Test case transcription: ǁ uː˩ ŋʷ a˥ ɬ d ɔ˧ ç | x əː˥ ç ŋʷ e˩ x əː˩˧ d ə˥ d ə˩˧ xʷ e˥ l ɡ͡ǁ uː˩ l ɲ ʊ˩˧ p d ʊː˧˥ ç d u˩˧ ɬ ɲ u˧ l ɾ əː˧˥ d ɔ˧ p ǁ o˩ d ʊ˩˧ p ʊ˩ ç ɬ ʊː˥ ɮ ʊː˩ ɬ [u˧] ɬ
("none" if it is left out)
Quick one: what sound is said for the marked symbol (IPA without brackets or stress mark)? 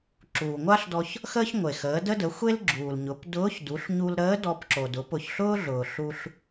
u˧